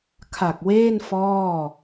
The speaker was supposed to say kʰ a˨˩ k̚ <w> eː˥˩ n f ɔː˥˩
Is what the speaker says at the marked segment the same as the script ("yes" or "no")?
yes